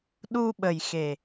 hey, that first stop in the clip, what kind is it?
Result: implosive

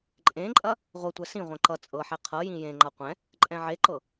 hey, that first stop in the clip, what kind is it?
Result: click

